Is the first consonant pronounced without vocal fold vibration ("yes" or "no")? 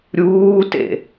no